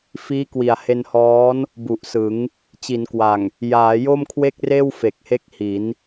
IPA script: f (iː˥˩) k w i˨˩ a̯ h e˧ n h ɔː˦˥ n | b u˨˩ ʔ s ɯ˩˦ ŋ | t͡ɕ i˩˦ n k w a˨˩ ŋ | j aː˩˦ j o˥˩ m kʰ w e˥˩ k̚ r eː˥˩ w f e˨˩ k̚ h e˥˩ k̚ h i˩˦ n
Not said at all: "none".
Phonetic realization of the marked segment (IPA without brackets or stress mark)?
iː˦˥